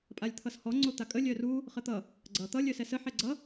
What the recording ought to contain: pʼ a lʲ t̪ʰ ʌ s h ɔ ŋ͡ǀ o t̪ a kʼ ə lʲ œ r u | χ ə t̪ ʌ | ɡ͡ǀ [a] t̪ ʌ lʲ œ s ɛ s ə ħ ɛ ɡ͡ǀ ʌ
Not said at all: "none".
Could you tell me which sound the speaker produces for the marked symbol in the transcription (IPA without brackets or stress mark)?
ʌ